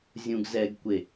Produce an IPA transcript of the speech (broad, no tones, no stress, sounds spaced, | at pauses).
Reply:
zʲ ũ ɡ z ɛ ɡ kʷ e